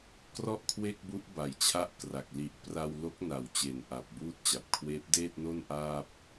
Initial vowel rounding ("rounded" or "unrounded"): rounded